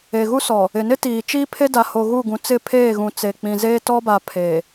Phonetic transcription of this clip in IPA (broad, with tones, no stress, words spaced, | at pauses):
e˨ɣu˦sɔ˨ | ɪ˨nɪ˦ tiː˨t͡ʃiː˦ pʰe˦da˨ho˨ ɣu˦˨ɡũ˨ t͡sɪ˦˨pʰeː˦˨ɣũ˨ t͡se˨k͡pĩ˨zeː˦ tɔ˦ba˨ pʰe˨